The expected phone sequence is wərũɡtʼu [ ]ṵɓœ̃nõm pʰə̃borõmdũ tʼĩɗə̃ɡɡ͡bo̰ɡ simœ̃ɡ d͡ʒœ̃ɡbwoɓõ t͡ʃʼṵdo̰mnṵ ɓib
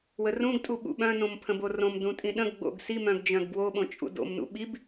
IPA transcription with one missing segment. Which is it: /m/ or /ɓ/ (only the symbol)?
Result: ɓ